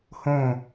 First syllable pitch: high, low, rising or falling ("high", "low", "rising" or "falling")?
falling